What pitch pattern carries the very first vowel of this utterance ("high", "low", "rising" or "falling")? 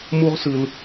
high